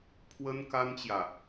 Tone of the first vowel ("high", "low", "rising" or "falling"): high